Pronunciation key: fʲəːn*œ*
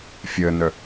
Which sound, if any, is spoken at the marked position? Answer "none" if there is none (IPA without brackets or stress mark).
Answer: œ